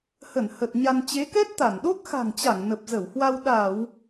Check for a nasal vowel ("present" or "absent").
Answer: absent